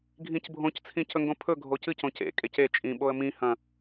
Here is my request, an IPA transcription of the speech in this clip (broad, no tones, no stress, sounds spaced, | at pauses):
ɡʱ ĩ c bʱ õ c t͡sʰ ĩ c ɵ ŋ ɡ õ pʰ ɵ ɡʱ o c ɨ c õ c ḛ kʼ e c e t͡ʃʼ ĩ ɓ o ə̯ m ĩ h ɐ̃